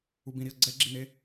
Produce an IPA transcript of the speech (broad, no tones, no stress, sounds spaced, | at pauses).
u b ĩ ɾ i ɐ̯ ɡ͡ǀ ɛ ɡ͡ǁ i n e